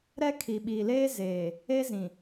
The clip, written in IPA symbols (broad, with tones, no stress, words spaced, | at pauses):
ɾɛ˦ kʰi˨ɓi˨leː˦ zeː˨ | e˦zĩ˨